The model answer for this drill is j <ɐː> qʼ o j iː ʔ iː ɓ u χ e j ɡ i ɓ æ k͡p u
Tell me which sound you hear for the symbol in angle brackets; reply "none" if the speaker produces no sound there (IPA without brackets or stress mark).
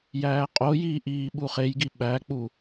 æː